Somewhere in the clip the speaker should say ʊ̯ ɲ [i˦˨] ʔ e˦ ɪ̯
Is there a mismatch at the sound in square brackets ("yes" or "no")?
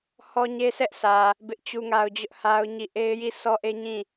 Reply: no